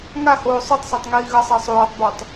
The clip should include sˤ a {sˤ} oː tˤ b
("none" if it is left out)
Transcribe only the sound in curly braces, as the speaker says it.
sˤ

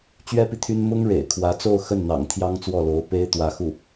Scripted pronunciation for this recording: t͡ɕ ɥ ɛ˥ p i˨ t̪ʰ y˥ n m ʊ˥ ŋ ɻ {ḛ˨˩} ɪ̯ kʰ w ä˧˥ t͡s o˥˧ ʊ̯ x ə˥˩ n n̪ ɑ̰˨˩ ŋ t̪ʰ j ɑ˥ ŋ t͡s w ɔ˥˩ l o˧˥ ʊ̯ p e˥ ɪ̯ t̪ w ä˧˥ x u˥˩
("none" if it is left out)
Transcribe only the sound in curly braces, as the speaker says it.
ḛ˨˩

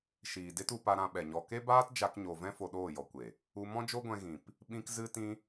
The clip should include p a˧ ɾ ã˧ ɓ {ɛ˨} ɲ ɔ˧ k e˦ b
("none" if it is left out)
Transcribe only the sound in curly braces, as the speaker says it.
ɛ˨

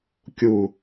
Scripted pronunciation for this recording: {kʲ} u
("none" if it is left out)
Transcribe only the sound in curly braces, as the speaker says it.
kʲ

